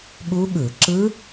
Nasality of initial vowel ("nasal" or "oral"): oral